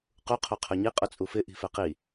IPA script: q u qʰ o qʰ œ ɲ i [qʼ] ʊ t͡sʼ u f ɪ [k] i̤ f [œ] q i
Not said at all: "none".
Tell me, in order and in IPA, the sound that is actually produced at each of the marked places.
qʼ, ʔ, ɛ

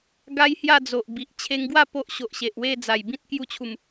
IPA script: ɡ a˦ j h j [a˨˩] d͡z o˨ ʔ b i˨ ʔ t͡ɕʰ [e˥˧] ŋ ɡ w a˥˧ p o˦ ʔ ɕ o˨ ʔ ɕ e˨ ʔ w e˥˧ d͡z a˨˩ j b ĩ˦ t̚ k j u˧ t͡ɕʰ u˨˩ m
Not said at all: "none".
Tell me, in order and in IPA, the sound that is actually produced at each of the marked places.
a˥˧, e˧

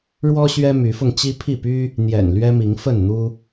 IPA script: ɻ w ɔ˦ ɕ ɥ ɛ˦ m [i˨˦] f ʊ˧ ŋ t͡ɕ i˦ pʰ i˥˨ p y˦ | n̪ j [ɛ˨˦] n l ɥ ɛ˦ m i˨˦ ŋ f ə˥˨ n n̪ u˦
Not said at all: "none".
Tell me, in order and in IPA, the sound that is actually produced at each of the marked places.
y˨˦, ɛ̰˨˩

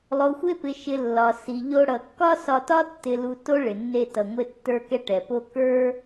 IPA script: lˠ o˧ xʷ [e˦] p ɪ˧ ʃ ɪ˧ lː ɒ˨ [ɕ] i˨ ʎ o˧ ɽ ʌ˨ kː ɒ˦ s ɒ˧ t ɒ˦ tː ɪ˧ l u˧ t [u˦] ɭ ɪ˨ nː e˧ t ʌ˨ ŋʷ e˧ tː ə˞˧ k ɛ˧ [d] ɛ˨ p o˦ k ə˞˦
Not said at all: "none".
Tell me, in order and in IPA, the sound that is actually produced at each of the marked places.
e˦, s, o˦, ʈ

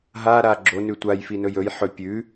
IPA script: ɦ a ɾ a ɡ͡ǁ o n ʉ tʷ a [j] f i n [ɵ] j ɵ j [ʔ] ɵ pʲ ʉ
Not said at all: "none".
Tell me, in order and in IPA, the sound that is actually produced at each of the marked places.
j, ɵ, ħ

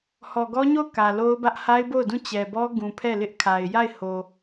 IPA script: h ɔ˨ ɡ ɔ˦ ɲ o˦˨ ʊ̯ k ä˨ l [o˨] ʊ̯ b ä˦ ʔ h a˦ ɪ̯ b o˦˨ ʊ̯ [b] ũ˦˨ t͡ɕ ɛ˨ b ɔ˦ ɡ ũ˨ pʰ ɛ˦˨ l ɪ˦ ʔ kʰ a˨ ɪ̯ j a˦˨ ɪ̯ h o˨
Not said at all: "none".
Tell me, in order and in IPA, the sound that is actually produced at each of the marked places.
o˦, d

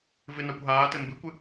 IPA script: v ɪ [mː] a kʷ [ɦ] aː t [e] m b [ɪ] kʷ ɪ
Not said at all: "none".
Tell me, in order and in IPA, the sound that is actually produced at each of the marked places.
n, ɦ, ɘ, ɪ

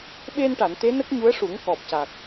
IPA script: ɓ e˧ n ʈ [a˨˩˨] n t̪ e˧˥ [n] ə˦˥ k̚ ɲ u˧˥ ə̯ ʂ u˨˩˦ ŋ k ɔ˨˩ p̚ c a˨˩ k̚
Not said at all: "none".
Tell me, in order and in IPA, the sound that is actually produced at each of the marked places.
a˨˩˨, n

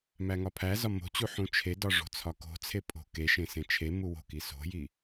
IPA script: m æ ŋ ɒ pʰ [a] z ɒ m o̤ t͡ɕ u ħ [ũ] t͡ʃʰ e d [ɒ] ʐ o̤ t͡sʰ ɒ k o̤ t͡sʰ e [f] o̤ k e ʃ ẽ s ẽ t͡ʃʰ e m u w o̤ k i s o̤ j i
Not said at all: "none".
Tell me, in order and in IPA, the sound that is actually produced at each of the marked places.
æ, ũ, ɒ, pʼ

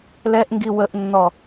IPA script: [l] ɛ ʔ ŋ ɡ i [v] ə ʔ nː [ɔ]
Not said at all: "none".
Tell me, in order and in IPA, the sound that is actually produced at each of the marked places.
l, w, ɔ

